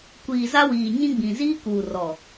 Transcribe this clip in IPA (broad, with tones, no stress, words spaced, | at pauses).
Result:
kʷiː˨za˦wiː˨ ɲĩ˦ɡ͡bĩ˨ ziː˦kuː˨rɔ˨